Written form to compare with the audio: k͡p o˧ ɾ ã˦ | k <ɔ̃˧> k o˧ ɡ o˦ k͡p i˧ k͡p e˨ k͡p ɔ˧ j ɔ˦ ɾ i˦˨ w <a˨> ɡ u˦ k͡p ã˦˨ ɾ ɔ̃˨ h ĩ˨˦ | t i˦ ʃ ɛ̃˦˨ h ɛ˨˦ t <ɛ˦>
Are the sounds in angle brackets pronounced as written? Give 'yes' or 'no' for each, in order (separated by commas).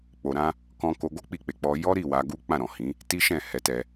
yes, no, no